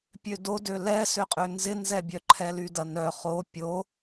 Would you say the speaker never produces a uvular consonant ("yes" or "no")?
no